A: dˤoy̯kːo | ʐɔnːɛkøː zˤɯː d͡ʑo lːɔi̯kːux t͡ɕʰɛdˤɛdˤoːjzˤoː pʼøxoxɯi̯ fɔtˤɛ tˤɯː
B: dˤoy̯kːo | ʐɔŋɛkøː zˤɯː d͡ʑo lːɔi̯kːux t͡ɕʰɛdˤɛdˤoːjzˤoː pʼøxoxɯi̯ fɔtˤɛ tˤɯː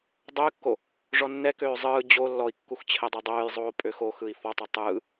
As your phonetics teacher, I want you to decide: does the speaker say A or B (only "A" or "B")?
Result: A